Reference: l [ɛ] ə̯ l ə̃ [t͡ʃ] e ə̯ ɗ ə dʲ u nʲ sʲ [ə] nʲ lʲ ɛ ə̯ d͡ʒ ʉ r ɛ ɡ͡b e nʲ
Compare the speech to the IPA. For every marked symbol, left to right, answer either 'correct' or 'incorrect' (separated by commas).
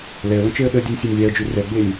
correct, correct, incorrect